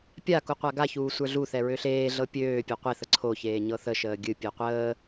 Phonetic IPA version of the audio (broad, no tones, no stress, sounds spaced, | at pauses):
pʲ a k u qʷ a ɡ a ç uː sʷ ə˞ ɮ u θ ɛ ɹ ø ɬ eː ɮ ɤ pʲ øː pʲ ɛ qʷ e θ ə ǀʰ o ç eː ɲ ɤ θ ə ʃ əː ɡʲ ɨ pʲ ɛ qʷ əː